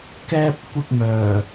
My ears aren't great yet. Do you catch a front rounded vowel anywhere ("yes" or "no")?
yes